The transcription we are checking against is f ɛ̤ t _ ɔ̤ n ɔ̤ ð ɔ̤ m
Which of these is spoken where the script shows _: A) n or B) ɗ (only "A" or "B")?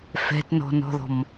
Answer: A